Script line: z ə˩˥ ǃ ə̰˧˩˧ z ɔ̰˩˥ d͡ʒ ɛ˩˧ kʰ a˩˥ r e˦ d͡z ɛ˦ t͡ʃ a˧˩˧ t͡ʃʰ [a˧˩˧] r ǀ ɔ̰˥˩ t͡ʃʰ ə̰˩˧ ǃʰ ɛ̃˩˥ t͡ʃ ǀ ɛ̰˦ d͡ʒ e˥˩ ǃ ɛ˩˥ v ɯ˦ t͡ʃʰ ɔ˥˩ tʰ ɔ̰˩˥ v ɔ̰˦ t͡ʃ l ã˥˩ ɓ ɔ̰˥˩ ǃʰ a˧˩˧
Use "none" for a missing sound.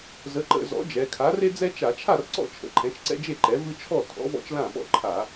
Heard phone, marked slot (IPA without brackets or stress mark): a˥˩